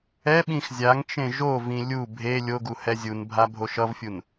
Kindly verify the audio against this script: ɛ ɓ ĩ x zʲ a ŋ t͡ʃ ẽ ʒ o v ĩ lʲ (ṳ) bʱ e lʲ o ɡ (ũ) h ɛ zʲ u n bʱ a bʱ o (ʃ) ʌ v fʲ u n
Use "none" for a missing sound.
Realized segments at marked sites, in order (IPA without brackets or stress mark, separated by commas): u, u, ʃ